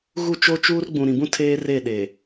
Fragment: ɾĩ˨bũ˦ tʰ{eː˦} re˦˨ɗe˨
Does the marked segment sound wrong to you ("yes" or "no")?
no